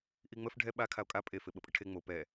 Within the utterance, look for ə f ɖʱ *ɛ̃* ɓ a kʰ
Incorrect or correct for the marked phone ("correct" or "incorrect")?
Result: incorrect